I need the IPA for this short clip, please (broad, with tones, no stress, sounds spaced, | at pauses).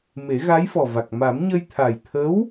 m e˨˩˦ ɣ a˧˥ j f ɔ˨˩ v a˨˩ k̚ m a˨˩˦ m ɲ ə˧ j t̪ʰ a˨˩ j t̪ʰ ə˧˥ w